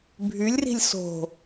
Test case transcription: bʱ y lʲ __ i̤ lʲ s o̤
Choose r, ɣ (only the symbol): r